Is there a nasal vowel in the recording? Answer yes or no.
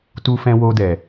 yes